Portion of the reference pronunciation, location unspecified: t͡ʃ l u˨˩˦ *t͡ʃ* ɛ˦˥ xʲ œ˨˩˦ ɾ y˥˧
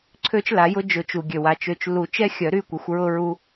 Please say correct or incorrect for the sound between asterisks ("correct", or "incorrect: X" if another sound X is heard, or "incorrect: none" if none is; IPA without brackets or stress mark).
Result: correct